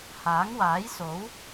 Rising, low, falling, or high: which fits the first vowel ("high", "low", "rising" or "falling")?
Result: rising